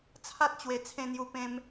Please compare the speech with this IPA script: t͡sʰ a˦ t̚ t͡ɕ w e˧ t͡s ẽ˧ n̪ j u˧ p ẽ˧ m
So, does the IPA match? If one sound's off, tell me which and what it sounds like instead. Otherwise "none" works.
t͡s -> t͡sʰ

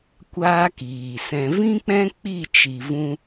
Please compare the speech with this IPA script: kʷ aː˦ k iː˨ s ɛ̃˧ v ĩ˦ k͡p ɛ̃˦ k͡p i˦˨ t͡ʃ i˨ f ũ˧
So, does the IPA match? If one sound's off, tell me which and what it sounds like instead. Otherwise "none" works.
f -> v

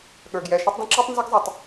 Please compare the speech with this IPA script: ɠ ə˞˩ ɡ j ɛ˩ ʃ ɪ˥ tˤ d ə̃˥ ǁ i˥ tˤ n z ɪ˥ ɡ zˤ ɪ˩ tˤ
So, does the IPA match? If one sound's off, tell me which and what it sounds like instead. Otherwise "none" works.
none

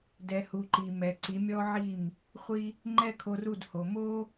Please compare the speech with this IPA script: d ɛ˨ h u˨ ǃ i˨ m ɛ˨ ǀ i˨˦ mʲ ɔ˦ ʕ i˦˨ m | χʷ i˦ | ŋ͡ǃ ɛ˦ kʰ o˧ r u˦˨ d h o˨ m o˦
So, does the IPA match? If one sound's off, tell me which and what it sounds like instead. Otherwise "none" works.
none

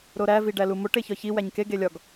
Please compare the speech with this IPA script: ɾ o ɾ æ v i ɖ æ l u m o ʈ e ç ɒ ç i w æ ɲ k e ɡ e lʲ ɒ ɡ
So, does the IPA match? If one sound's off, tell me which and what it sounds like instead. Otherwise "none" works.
none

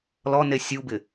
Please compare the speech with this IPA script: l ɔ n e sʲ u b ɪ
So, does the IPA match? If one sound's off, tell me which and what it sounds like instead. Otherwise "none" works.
none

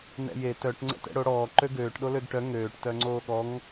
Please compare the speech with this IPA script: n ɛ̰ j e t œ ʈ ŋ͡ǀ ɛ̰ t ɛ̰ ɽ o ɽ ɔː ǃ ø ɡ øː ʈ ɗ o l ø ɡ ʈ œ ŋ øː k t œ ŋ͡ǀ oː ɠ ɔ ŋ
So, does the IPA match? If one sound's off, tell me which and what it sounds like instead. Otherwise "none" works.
k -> ʈ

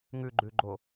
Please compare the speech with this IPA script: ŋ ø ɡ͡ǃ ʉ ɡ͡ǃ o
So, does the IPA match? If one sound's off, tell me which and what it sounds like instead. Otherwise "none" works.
ø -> ʉ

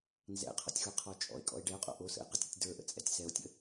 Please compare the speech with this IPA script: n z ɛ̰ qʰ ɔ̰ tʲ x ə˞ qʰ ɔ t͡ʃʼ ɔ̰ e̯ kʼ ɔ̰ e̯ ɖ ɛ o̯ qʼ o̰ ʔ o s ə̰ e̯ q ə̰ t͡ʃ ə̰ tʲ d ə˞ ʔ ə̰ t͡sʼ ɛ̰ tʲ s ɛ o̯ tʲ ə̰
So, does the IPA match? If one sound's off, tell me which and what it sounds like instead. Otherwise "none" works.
t͡ʃ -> tʲ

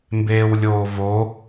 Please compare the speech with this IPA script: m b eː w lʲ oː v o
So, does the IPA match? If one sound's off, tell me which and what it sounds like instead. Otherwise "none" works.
none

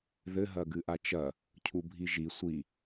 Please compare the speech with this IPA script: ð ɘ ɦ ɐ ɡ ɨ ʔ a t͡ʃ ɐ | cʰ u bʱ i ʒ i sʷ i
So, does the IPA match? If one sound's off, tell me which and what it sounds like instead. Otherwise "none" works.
none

